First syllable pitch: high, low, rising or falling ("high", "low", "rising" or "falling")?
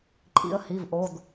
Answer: rising